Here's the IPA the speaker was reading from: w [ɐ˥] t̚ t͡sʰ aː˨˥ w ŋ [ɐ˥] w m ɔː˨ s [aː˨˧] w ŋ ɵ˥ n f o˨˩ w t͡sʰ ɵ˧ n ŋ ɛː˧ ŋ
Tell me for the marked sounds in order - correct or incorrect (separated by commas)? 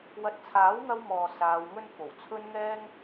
incorrect, incorrect, correct